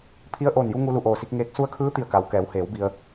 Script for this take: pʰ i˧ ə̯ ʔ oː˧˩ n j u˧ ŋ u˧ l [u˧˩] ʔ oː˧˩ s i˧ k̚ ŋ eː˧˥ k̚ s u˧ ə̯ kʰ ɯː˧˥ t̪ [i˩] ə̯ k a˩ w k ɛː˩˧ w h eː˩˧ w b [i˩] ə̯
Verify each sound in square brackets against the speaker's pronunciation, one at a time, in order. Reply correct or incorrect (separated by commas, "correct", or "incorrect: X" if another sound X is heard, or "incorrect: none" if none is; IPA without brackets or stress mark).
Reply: correct, incorrect: i˧˩, correct